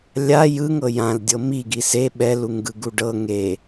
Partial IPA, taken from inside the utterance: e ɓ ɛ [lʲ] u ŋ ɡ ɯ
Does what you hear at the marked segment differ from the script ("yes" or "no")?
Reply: yes